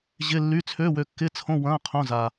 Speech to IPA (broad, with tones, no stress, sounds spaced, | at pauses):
ʑ ɪ˧˥˧ lː y˧˥˧ t͡sʰ ø˧˥˧ w ø˧ kː ɪ˧˥˧ t͡sʰ õ˧˥˧ w ɐ̃ː˧˥˧ qʰ õ˧˥˧ z a˧